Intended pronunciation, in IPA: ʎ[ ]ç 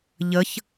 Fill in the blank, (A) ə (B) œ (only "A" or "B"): A